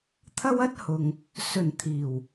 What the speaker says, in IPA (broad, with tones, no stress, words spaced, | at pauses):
t̪ʰɐ˥wɐ˥t̚hʊ˨ŋ | sɵ˨˩n t̪ʰiː˨˩w